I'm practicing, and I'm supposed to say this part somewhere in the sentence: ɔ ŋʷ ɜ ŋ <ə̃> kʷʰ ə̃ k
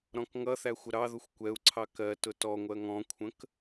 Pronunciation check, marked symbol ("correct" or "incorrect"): incorrect